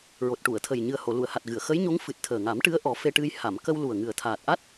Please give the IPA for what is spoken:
ɹ o˨˩ t̚ ʈ u˨˩˨ ə̯ t̪ʰ ə˨˩ j ɲ ɨ˨˩ ə̯ h o˨˩˨ l u˨˩˨ ə̯ h a˨˩ t̚ ɣ ɨ˨˩˨ ə̯ x ə˧˥ j ɲ o˧˥ ŋ f ɨ˨˩ t̚ t̪ʰ əː˨˩ ŋ a˨˩˦ m ʈ ɨ˧˥ ə̯ ʔ ɔ˨˩˦ f e˧ ʈ ɨ˧ j h a˨˩˨ m k ə˧ w l u˨˩ ə̯ ŋ ɨ˨˩ ə̯ t̪ʰ aː˨˩ t̚ ʔ a˦˥ t̚

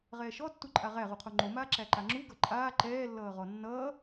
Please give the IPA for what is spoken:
ʁ ɛː ʃ ɔ tː u ǃʼ a ʁ æ ʁ u qʰ o ŋ͡ǃ o m aː ǁ æ ǃ a ŋ͡ǁ u ɡ ʌ ǃʼ aː ǃ ɛː lː ʌː ʁ ɔ nː ʌː

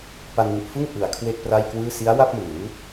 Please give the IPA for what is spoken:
p a˧ n w u˨˩ ʔ f ɯ˥˩ ŋ ʔ ɯ˨˩ a̯ kʰ w e˥˩ k̚ p r a˥˩ j k w ɯː˥˩ s i˦˥ a̯ w a˥˩ p̚ m ɯː˩˦

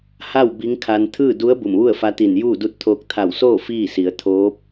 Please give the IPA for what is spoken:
h a˥˨ w b i˧˥ ŋ kʰ a˧ n t̪ʰ ɯː˥˨ d u˧˥ ə̯ b u˧˩ m ʋ u˥˨ ə̯ f a˧˥ t̪ i˧˩ n j uː˥˨ d u˧˥ t̚ t̪ʰ oː˧ k̚ t̪ʰ a˧˩ w s oː˥˨ f iː˥˨ s i˩˧ ə̯ t̪ʰ oː˧˥ p̚

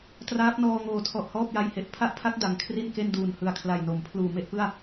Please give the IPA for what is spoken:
t r aː˦˥ p̚ n ɔː˧ ŋ oː˨˩ tʰ ɔ˨˩ ʔ h ɔː˥˩ p̚ j a˧ j h e˨˩ ʔ pʰ a˥˩ ʔ pʰ a˦˥ k̚ d a˩˦ ŋ kʰ r i˥˩ n k e˥˩ n d uː˨˩ n h ɯ˨˩ a̯ kʰ l a˨˩ j n o˩˦ m pʰ l uː˨˩ m e˥˩ ʔ p ɯ˥˩ a̯

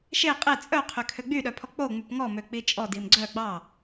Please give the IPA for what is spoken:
ʃ e qʼ e t͡sʼ œ qʰ ø kʰ ø ɡ͡b y ɗ œ pʰ ɔ k͡p o ŋ͡m y p ŋ ɔ m ø k͡p i t͡ʃʼ ɔ d i m ɡ͡ǀ œ ɡ͡b ɑ

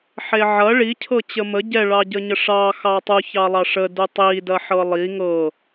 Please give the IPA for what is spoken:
ħ e ʕ ɐ ɭ i cʰ ɤ t͡ɕ ə m ə ɟ ɛ ɭ ɑ ɟ ə ɲ ə ʂ ɑ x ɑ tˤ u ç ɑ lˠ ɑ ʂ ə d u tˤ i d ɐ ħ ɤ lˠ i ŋ ɤ

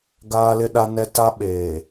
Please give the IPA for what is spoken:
ɡ aː˦ l ɪ˦ ɗ a˦ n ɛ˦ t a˦ ɓ eː˨

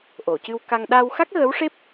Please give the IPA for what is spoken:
ʔ o˨˩˨ c ɨ˧ w k a˧ ŋ ɗ a˧ w x a˦˥ k̚ ɣ ə˧˥ w ʂ e˦˥ p̚

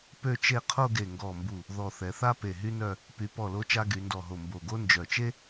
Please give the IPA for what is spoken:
p ø˥˧ t͡ʃ e˥˧ qʰ o˥˧ ɡ e˧˩ ŋ ɡ ɔ˧˩ m b u˧˩ | ð ɔ˧˩ θ ɛ˩˧ θ a˥ p e˧˩ ɦ y˥ n œ˥˧ | p y˩˧ p ɔ˧˩ l o˧ t͡ʃ a˧ ɡ y˩˧ n d ɔ˧˩ ɦ o˧˩ m b o˧˩ ɡ o˥ n d͡ʒ œ˧˩ t͡ʃ e˥

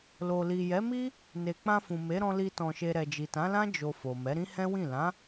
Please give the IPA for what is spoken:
l o˨ l i˨ j ɛ˨˦ m i˦ | n e˨ k͡p ã˧ f ũ˨ m e˨˦ ɾ ɔ̃˧ l i˧ t ɔ̃˨ ʃ e˨ ɾ ɛ˨ d͡ʒ i˨ t ã˨˦ l ã˦ d͡ʒ o˧ f o˨ m ɛ˨˦ ɾ ĩ˦ h ɛ̃˦ w ĩ˦˨ l ã˨˦

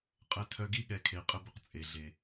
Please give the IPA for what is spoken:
qʼ ə˧ tʰ œ˧ ɡ i˦ ɠ ɛ˧ kʰ e˨ qʼ ə˦ b ə˧ q t͡sʼ e˨ ɮ e˨

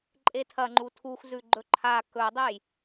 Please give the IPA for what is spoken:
ǃʼ e tʰ ɐ ŋ͡ǃ u tʰ u x z ʉ ɡ͡ǃ ɵ ǃʰ a k ɵ dˤ e j

